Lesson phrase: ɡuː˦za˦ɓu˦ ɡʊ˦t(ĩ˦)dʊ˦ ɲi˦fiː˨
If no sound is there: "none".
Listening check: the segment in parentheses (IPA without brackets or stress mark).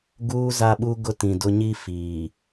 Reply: ĩ˨